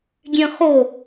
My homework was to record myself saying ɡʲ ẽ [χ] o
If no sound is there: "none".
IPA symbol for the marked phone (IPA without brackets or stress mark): χ